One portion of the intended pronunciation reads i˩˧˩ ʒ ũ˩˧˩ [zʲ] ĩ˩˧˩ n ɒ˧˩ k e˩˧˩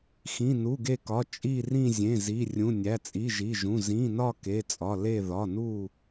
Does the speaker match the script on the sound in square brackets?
no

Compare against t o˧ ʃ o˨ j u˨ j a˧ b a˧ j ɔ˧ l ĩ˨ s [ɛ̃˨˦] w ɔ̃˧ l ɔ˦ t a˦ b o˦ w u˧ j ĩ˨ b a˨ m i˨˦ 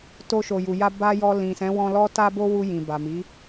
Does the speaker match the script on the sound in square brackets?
yes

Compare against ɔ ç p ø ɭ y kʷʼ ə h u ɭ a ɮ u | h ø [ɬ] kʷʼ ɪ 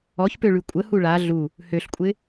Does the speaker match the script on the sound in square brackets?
yes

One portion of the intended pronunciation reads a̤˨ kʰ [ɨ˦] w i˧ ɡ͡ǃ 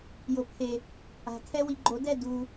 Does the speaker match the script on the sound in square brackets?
no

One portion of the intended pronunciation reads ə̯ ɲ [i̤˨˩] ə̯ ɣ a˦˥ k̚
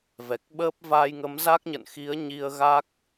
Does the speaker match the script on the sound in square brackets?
no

